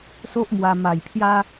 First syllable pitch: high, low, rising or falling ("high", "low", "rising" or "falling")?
high